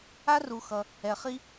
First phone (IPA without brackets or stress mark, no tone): a